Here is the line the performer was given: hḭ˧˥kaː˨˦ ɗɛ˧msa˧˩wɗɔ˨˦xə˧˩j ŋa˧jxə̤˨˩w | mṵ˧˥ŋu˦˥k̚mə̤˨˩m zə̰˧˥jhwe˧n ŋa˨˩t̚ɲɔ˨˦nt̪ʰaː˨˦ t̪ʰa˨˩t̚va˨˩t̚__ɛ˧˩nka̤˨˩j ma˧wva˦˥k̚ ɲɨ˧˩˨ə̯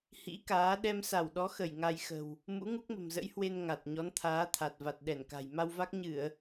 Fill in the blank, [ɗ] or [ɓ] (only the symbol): ɗ